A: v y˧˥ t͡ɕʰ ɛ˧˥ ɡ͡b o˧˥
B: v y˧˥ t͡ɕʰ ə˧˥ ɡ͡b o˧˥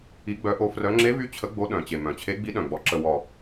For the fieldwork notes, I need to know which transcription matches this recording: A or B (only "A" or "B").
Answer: B